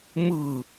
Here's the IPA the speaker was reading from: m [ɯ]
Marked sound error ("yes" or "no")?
yes